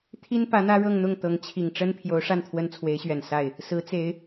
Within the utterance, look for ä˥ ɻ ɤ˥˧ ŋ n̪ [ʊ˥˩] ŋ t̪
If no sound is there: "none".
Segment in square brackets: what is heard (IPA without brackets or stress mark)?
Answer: ʊ˥˩